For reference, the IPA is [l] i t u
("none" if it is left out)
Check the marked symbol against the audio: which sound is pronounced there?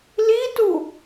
l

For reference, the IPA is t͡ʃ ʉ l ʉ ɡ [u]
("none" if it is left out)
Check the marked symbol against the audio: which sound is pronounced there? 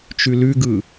ɯ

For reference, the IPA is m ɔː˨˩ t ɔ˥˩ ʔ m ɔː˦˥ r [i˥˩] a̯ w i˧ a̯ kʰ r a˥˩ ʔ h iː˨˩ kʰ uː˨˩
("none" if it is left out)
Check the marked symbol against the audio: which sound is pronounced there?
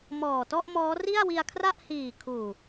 i˥˩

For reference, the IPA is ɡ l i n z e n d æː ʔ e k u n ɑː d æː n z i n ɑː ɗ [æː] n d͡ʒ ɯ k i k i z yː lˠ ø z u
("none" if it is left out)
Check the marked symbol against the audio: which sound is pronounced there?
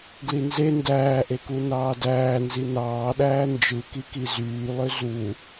æː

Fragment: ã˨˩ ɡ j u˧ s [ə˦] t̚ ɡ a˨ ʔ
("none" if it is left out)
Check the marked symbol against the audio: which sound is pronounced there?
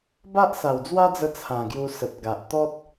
ə˨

